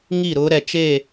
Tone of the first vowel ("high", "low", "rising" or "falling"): falling